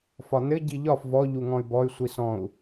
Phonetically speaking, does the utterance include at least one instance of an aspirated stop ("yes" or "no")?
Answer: no